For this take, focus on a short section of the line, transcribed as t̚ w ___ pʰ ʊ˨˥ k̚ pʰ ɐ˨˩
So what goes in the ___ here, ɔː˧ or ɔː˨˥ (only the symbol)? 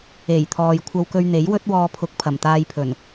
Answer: ɔː˧